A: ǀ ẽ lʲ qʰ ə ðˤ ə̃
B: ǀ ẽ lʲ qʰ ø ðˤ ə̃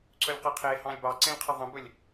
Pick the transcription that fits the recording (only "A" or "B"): A